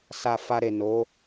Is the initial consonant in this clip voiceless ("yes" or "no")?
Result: yes